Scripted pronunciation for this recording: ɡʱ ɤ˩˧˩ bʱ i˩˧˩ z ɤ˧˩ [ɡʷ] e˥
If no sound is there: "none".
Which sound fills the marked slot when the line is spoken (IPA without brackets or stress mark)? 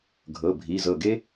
ɡ